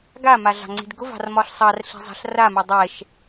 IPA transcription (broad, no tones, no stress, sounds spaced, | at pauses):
ɡ a m a ɮ ɑ̤ ŋ͡ǀ i̤ d ɡ ʊ v ɑ̤ r m ɒ ɬ sˤ ɑ r ɬ i̤ zˤ ɑ̤ ɬ r a m ɛ dˤ ɛ ʃ